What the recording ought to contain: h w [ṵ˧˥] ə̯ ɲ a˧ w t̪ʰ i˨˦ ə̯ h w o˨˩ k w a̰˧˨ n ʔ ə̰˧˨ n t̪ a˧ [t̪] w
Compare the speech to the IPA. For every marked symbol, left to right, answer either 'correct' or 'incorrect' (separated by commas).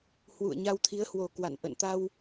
incorrect, incorrect